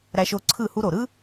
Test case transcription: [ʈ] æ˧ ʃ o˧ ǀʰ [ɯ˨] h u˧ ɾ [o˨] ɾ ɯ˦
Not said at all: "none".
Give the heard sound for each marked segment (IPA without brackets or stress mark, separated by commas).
ɾ, ɯ˦˨, o˨